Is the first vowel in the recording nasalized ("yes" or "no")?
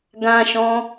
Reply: yes